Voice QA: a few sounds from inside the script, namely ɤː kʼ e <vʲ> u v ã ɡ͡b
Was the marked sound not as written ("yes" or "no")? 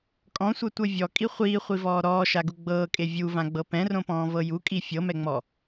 no